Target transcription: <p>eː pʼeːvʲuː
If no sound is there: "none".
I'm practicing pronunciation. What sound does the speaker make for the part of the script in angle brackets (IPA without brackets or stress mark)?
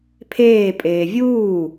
pʰ